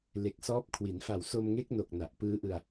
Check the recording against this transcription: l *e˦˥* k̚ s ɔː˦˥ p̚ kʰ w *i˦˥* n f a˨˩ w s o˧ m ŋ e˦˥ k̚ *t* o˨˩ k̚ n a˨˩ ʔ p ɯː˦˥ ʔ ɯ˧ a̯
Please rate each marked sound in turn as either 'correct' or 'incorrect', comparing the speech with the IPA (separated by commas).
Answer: incorrect, incorrect, incorrect